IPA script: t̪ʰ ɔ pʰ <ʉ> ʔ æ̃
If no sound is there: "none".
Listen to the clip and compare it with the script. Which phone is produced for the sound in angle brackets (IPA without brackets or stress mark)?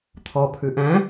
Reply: ʉ